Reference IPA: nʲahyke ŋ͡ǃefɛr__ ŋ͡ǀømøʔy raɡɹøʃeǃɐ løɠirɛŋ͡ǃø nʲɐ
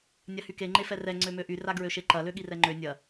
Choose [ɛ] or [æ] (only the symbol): ɛ